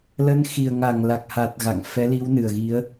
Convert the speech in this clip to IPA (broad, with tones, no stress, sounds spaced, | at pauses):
l ə˨˦ n x i˨˩ ə̯ ŋ a˧˩ ŋ l a˨˩ k̚ h a˨˩ t̚ ɣ a̰˧˨ ŋ f ɛ˨˦ l i˨˦ w n ɨ˨˩ ə̯ ɣ i˨˦ ə̯